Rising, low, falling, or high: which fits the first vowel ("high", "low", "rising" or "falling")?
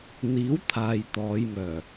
rising